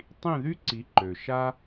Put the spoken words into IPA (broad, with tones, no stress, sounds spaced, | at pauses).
tˤ ĩ˥˩ ð y˥ ǀ i˩˥ ǃ ø˩ ʃ a˥